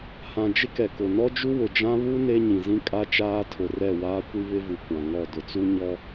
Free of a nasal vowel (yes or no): no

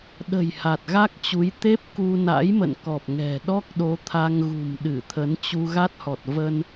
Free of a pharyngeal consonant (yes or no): yes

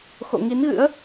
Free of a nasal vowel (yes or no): yes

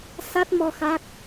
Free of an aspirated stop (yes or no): yes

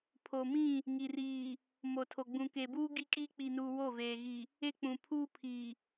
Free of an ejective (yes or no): no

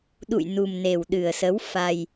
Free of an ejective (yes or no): yes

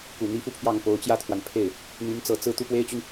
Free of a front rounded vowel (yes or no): no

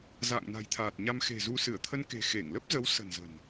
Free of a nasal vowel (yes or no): yes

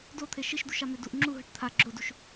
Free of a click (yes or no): no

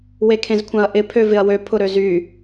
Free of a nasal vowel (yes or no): no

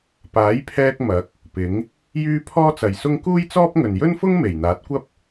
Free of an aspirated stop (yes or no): no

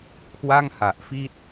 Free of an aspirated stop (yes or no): no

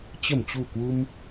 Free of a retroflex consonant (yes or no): yes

